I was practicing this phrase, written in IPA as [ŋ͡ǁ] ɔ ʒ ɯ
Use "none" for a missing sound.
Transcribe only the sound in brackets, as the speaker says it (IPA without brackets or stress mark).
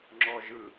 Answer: ŋ͡ǁ